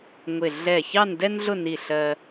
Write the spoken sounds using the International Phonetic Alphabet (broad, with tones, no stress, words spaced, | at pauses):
ŋʷɪ˧˩ ɮɛ˧˩ çɑ˥˧ndɛ˥nɮʊ˥˧ ni˧˩ɬɜ˧